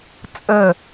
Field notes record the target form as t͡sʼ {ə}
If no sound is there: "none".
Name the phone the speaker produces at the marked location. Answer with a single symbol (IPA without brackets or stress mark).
ə